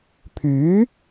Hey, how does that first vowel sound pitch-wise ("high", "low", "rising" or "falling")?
rising